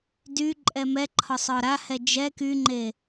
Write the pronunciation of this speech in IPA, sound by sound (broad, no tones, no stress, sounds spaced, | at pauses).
d y ǃʼ ɛ m ɛ ǃʰ ɒ sˤ ɒ ɾ a h ɛ d͡ʒ ɛ k y ŋ͡ǃ e